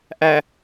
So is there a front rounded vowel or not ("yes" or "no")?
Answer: no